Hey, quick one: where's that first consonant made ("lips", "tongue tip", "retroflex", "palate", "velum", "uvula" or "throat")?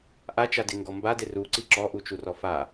throat